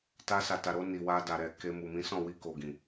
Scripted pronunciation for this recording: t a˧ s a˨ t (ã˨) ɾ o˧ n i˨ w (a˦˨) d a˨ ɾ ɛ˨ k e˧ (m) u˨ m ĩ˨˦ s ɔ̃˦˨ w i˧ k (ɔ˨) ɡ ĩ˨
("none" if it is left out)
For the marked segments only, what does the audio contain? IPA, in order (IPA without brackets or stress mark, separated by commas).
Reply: a˨, a˧, m, o˨